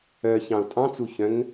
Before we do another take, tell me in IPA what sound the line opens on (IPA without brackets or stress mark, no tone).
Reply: œ